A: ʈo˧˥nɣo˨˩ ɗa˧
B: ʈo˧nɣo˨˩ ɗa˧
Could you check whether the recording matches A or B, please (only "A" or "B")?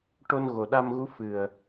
B